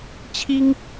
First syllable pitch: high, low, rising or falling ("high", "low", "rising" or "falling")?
high